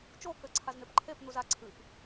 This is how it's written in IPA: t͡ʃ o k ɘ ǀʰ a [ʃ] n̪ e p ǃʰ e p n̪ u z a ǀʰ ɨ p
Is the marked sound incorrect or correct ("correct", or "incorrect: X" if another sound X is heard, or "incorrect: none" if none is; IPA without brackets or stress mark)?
incorrect: z